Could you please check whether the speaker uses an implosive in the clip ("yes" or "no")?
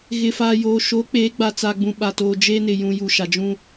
yes